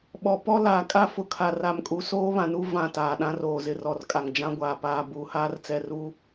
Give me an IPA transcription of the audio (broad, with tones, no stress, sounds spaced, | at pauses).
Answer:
ɓ ɔ˨ p ɔ˦ l aː˨ kʼ a˦ f ʊ˨ kʰ a˨ r a˨ m kʼ u˨ s oː˦ β ã˨ n u˦ v ã˦˨ t aː˨ ɗ ã˦ r oː˨ z ɪ˨ r ɔ˨ r kʼ a˨ ŋ d͡ʒ ã˦ ɡʷ aː˨ p aː˨ b uː˨ h aː˦ r t͡s ɛ˦˨ r uː˦